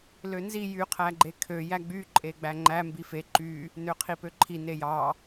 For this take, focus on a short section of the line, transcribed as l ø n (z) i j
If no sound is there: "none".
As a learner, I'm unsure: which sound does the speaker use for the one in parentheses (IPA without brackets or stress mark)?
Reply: z